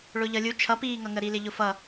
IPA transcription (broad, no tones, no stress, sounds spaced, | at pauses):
ɭ ʊ ʎ ʌ lʲ u t͡ʃʰ ʌ p iː ŋ ʌ ŋ ə ɾ i l ɪ ʎ ʊ f ʌ